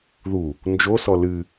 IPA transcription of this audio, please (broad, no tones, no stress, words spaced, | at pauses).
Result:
ðu | nd͡ʒosɔ lɨ